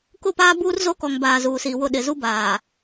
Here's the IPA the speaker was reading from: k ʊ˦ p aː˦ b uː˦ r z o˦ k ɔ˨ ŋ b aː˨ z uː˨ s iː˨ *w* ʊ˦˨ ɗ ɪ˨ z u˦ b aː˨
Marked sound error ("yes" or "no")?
no